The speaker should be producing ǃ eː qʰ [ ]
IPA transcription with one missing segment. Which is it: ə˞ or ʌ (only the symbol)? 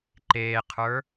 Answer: ə˞